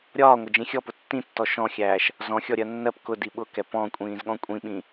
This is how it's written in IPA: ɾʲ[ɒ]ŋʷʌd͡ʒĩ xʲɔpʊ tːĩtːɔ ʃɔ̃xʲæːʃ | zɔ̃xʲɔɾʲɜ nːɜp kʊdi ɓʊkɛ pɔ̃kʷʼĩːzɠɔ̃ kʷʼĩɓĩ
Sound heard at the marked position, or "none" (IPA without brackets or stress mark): ɒː